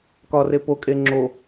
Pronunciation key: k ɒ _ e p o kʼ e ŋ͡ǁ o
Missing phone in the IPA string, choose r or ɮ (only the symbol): r